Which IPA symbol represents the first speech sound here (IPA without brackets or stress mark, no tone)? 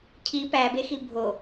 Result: cʰ